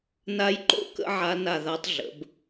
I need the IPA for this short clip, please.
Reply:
n a˦˥ j ǃ o̰˦˨ k ə̰˦˥ ʕ a˦˥ n a˦˨ ð a˦˥ tˤ ɮ ə̰˩˧ b

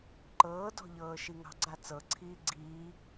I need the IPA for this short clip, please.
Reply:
ǃ ɤː d ɔ̤ ʎ ɤː ʃ i ŋ ɑ̤ ɡ͡ǀ a t͡s ɤ ǀʰ iː ɡ͡ǀ iː

